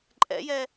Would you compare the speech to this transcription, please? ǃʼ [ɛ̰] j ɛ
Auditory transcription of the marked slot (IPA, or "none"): ɛ̰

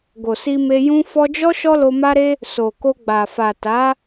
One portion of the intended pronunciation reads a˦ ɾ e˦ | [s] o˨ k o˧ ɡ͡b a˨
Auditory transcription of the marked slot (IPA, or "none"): s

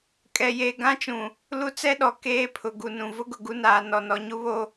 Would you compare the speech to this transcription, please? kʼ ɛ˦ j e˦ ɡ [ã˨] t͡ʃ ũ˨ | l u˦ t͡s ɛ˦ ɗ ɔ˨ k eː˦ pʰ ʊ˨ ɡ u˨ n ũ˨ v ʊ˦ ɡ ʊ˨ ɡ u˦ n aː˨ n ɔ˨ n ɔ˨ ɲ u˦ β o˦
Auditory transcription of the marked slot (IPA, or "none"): ã˦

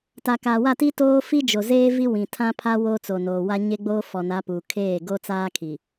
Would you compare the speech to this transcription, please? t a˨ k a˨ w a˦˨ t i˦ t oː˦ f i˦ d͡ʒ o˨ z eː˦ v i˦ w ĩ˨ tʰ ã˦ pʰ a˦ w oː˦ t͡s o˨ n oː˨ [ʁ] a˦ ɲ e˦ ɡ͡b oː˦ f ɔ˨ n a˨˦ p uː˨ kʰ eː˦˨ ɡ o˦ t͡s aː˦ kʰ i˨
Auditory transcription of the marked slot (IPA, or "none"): w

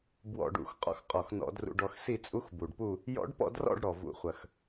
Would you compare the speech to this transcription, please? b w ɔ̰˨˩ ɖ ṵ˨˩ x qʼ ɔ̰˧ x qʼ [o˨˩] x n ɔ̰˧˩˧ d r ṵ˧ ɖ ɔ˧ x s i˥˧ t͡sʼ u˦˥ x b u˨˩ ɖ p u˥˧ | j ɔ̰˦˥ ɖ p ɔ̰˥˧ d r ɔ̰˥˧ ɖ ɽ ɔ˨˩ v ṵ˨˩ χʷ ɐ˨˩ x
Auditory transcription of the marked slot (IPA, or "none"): ɔ˨˩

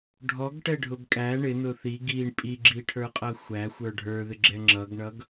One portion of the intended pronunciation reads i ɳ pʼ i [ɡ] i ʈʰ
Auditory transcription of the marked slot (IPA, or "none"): ɡ͡ǁ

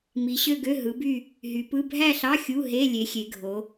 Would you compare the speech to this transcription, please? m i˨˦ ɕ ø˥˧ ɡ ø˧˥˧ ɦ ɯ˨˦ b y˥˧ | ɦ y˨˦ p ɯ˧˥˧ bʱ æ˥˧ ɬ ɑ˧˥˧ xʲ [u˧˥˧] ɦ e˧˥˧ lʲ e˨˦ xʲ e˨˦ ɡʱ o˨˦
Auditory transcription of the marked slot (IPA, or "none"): u˧˥˧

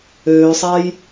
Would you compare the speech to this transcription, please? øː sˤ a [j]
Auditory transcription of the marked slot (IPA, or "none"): j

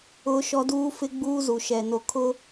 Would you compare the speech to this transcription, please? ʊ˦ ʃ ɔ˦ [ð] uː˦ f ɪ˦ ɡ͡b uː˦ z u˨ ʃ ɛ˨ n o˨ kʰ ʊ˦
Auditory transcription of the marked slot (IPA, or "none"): d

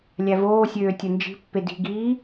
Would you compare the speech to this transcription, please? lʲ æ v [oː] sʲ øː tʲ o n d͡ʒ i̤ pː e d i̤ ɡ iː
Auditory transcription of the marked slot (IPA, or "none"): oː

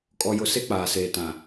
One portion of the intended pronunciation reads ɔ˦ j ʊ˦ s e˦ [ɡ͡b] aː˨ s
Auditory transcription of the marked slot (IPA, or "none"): k͡p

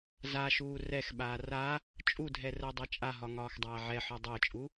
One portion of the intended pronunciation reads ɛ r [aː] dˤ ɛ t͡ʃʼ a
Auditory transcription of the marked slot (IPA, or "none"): əː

